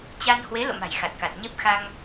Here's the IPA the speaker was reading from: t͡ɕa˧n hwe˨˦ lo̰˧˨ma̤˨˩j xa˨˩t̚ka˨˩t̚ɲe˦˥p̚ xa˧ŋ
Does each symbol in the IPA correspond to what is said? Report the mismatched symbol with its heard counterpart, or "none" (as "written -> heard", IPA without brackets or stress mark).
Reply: none